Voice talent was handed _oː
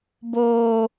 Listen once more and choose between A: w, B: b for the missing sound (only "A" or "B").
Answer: B